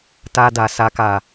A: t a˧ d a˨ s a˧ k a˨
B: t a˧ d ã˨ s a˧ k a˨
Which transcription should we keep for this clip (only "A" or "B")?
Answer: A